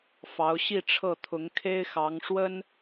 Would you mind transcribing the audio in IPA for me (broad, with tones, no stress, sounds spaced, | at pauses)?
f ɑ˧˥ ʊ̯ ɕ i˥˧ ʈ͡ʂʰ ɤ˥˩ t̪ʰ ʊ˧˥ ŋ kʰ e˥ ɪ̯ x ɑ˧˥ ŋ ʂ w ə˥ n